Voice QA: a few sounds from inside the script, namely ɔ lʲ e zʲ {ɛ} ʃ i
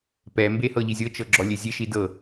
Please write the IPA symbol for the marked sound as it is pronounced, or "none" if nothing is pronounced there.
e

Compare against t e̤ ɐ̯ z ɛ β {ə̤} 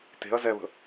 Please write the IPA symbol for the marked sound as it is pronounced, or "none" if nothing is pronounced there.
ə̤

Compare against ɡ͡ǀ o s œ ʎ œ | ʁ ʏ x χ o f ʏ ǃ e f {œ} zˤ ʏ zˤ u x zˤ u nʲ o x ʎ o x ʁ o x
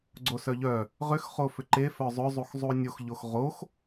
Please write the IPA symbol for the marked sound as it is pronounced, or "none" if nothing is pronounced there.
œ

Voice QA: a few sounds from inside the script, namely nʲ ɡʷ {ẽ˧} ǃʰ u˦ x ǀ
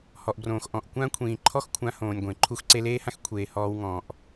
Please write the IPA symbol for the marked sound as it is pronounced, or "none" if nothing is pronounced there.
ẽ˨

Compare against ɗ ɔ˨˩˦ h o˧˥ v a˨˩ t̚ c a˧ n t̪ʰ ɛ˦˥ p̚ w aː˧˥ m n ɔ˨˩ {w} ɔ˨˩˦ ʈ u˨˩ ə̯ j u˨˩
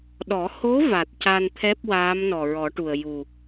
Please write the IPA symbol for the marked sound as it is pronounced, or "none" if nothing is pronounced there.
ɹ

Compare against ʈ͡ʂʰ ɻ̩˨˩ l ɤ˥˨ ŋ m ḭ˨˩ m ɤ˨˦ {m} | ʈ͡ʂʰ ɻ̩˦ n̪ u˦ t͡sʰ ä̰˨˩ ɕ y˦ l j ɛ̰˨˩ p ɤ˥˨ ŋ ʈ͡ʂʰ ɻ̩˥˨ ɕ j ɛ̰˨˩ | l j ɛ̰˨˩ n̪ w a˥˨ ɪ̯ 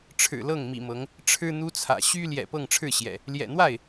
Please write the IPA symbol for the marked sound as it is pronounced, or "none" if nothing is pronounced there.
ŋ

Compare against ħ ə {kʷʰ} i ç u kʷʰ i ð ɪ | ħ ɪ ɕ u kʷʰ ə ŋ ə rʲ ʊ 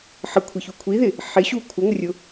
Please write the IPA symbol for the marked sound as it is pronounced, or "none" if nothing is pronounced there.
kʷʰ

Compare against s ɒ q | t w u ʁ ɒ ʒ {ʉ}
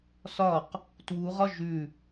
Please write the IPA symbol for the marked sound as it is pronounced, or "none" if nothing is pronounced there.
ʉ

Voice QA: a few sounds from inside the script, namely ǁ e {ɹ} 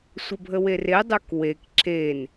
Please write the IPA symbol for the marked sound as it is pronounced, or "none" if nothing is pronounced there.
n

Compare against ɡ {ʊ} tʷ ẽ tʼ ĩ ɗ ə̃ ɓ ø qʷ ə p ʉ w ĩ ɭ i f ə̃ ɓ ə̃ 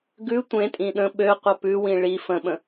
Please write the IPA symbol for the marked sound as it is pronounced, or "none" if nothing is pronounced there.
ʉ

